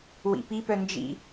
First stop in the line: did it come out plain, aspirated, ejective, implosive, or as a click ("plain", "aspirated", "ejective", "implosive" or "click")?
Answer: plain